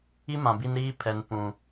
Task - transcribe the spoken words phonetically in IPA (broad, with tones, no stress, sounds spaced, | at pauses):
i˦ m ã˨ b i˦ n ɾ iː˦ pʰ ɛ˨ n p ũ˨